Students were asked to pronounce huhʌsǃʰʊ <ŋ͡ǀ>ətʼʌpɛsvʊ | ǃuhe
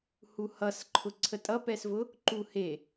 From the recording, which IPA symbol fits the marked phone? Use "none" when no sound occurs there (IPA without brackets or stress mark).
ǀʰ